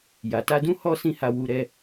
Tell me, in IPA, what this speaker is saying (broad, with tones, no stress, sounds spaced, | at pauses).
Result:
j a˨ t a˧ d ũ˦ h ɔ˦ s ĩ˦˨ h a˧ w u˧ ɾ ɛ˦